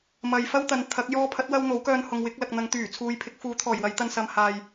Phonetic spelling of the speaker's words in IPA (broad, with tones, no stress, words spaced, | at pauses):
mɐ˨jfɐ˥wt̪ɐ˨n t̪ʰɐ˨˥k̚ jɔː˧pʰɐ˨˥t̚wɐ˧w n̪o˨˥wkœː˧n hʊ˨ŋwɪ˨˥k̚lɐ˨k̚ n̪ɐ˨˧ŋt̪yː˨˩t͡sʰuː˨j pʰɪ˨˥k̚ fuː˨˥t̪ʰɔː˨˩jwɐ˨˧j t̪ɐ˧nsɐ˨˧mhaː˨j